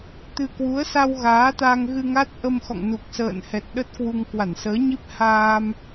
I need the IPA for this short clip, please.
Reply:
t̪ ɨ˧ k w u˨˦ ə̯ s a˧ w ɣ aː˨˦ t̪ a˧ ŋ ɣ ɨ˧ ŋ a˦˥ t̚ ʔ ə˧ m x ɔ̰˧˨ ŋ n u˨˩ k̚ s ə̰ː˧˨ n h ɛ˨˩ t̚ ɗ ə˦˥ t̚ k w u˧ ŋ k w a˧˩ n s əː˨˦ ɲ i˦˥ p̚ h aː˧ m

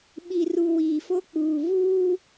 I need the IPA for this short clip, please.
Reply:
ɓ i˨ r u˨ w iː˨ f o˦ k͡p uː˨ v uː˦

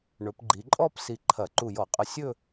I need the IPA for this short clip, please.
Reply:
ɳ ɵ˩˧ p ɡ͡ǃ i˩˧ ǃʼ ɔ˥˧ p s i˧˩ ǃʰ ɐ˧˩˧ ǃ u˧˩ j ɔ˧˩˧ qʼ ə˧˩ sʲ ɵ˥˧

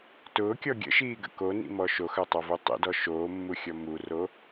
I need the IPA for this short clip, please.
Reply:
t ʊː kʲ ɔ ɡʲ ə̰ ʃ iː ɡ ə̰ k o n ḭ m ɔ ʃ o x œ tˤ a v u tˤ ḭ d ɔ ʃ oː mː u xʲ ɔ m u r o

